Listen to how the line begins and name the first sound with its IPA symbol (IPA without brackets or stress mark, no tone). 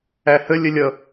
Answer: æ